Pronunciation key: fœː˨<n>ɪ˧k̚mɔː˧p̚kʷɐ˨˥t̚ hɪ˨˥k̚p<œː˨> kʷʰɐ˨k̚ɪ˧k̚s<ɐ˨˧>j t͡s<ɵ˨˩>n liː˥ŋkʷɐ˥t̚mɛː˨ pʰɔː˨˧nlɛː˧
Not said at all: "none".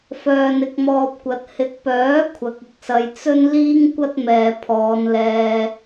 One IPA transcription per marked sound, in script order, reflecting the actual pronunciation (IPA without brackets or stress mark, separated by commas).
n, œː˨˥, ɐ˨˧, ɵ˥